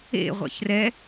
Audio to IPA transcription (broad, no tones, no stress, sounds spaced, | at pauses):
ḛ ʁʷ ɛ̰ ç r ɛ